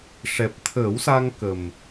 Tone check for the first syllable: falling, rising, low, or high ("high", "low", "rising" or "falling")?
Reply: low